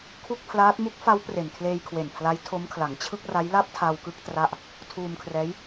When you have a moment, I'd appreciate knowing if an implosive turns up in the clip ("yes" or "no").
no